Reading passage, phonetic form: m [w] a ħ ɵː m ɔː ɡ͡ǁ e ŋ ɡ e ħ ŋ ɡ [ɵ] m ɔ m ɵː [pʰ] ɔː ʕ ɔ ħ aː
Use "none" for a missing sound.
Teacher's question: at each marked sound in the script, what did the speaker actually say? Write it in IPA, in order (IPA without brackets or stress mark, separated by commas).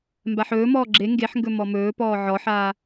b, ɵ, p